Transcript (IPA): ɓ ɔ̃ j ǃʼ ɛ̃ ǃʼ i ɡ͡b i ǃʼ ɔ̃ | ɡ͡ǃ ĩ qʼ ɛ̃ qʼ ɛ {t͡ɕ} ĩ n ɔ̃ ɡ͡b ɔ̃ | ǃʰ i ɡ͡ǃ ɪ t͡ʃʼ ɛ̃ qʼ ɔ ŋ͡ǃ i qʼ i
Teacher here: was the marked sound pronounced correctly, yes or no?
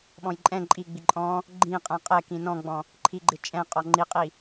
no